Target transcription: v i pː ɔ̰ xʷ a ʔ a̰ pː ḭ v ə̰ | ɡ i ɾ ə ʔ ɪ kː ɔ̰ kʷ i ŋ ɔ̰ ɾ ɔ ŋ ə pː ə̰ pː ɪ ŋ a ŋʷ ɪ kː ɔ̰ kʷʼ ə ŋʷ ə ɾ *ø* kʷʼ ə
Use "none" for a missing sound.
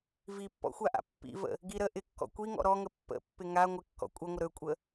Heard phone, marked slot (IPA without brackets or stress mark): ø